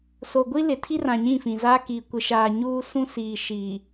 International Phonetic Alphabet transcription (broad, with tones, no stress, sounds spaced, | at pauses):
s o˨ ɡʷ i˦ l ɪ˨ tʰ i˦ r ã˨ ɲ ĩ˦˨ f ĩ˨ z aː˦ k iː˨ kʷ ɪ˨ ʃ aː˨ ɲ uː˦ s ũ˦ s iː˨ ʃ iː˨